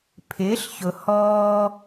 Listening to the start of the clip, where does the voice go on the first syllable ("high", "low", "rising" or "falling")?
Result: rising